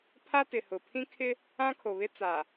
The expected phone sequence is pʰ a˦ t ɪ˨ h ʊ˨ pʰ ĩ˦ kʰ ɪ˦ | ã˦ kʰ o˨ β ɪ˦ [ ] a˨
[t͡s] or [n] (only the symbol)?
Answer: t͡s